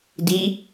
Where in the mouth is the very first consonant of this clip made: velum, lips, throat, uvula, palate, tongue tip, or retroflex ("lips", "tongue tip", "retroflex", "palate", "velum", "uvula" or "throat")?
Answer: tongue tip